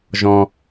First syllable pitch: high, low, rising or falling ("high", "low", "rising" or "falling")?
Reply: low